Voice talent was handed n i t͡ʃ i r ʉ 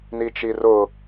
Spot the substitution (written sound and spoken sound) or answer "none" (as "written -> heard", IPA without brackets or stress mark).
ʉ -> ʊ